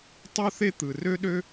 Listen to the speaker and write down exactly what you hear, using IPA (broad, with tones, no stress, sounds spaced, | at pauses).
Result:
tˤ u˥ θ e˥ t̪ ɯ˩ r ø˥ ɗ ø˥